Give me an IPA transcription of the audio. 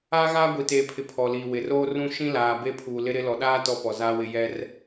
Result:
aː˦ ɣ aː˦ ɡʷ i˨ t eː˨ pʰ ɪ˨ pʰ ɔ˨ l iː˨ w ɪ˨ r oː˦ r ũ˦ ʃ ĩ˦ l aː˨ b e˦ pʰ uː˨ l ɪ˦ ɾ ɪ˦ l ɔ˨ ɗ aː˦ t ɔ˦ p ɔ˨ z aː˦ w ɪ˦ j ɛ˦ r

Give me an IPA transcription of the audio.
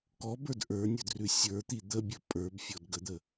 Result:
k ɔ b ə˞ d ʔ ə˞ nʲ ə˞ d r ʉ sʲ ə˞ t̪ i d̪ ə bʲ ə pʼ ə˞ b fʲ ɔ d ɡ ə d̪ ə

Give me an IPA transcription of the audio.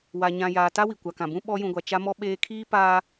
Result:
w a˨ ɲ ã˨ j aː˨ t a˦ w i˨ kʷ a˨ k ã˨ b ũ˦ ɓ ɔ˦ j ũ˨ ɡʷ a˨ t͡ʃ a˦ m ɔ˦ ɓ eː˦ kʰ iː˦ p aː˦

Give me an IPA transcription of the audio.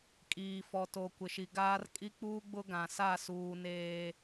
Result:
kʼ iː˨ f ɔ˨ t o˨ kʷ ɪ˨ ʃ i˨ ɡ aː˦ r kʼ i˦ k͡p uː˦ ɡ͡b ʊ˦ ɡ ã˨ s a˦˨ s uː˨ n eː˨

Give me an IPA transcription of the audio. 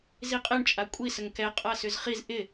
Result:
z i qʼ e ɳ t͡ʃʼ a kʷʼ i s ə ŋ k ɛ qʼ a s ʏ z χ i z ʔ ɪ

